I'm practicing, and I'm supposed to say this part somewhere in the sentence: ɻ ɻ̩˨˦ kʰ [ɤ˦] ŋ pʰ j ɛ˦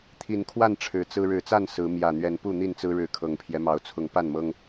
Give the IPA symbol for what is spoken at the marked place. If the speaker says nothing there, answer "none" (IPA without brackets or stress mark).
ɤ˨˩